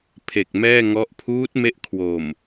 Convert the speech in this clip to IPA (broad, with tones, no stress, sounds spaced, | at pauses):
pʰ e˨˩ k̚ m ɛː˥˩ ŋ ɔ˦˥ ʔ pʰ uː˦˥ t̚ m e˦˥ ʔ kʰ w o˨˩ m